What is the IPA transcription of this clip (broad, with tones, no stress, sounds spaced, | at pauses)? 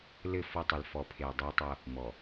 l ɘ˦˨ f ɔ˦ tˤ ɨ˨ l f ɔ˨ pʰ e˨ y̯ dˤ e˦ tˤ ɐ˦ | m ɔ˨